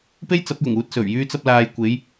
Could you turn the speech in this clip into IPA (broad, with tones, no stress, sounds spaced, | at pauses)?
p e˥ j t͡s ɐ˨˥ p̚ j ʊ˨˩ ŋ uː˧ t̚ s ɵ˨˩ ɥ j yː˧ t͡s ɐ˧ p̚ l aː˨ j kʷ e˨˧ j